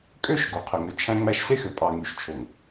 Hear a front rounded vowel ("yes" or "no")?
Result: yes